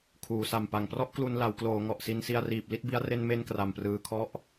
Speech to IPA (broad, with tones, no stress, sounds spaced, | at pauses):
kʰ uː˩˦ s a˨˩ m p a˨˩ ŋ p r ɔ˥˩ ʔ k l u˧ n l a˩˦ w k l oː˩˦ ŋ ɔ˨˩ ʔ s i˧ n s i˧ a̯ r iː˨˩ p̚ l i˥˩ t̚ b i˦˥ a̯ r e˧ n m e˧ n k r a˨˩ m p r ɯː˧ kʰ ɔ˦˥ ʔ